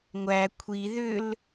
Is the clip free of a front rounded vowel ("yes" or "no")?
no